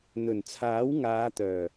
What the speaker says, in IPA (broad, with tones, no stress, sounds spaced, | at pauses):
n̪ ɵ˨˩ n t͡sʰ aː˨˥ w ŋ aː˨˧ t̪ œː˨˩